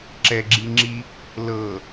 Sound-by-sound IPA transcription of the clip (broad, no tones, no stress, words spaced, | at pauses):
ǁɛɡ͡ǁiŋ͡ǁi | lɤ